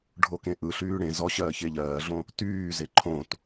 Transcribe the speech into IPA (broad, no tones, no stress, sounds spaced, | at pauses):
ɖʱ o k ẽ ʔ ɯ ɬ yː ɽ ẽ z ɔ ɕ ɜː ç e ʎ ɜː ɮ õ | t yː z e ǃʰ õ t